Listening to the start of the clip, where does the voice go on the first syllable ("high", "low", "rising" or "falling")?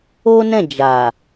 high